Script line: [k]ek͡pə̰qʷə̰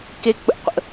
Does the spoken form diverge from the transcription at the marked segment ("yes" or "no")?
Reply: no